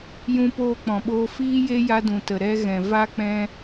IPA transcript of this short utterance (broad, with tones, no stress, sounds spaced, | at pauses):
j ũ˧ p oː˧ k͡p ɔ̃˨ ɓ oː˧ f iː˦ j e˦ j a˧ d ũ˨ t ə˨ ɾ ɛ˧ ɣ ɛ̃˨ v a˧ k͡p ɛ̃˧